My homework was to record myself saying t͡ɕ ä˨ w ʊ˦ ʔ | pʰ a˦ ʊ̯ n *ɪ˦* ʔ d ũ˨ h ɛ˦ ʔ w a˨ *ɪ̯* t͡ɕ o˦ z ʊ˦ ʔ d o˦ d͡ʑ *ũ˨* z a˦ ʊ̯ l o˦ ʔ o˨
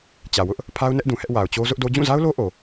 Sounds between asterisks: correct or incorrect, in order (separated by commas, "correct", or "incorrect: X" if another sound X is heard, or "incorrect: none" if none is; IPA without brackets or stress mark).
incorrect: ɛ˦, incorrect: ʊ̯, incorrect: ũ˦˨